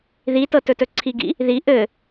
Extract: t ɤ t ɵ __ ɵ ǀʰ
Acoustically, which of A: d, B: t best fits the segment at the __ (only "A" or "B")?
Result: B